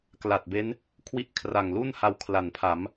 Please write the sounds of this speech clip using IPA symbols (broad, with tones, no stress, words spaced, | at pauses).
kla˨˩t̚be˦˥n | kʰwi˦˥ʔkʰra˨˩ŋlu˥˩nha˧w kʰla˨˩npʰa˩˦m